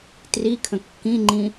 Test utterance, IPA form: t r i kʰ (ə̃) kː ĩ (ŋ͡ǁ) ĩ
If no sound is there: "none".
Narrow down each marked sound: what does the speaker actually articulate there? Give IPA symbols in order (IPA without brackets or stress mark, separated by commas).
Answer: ə̃, ŋ͡ǃ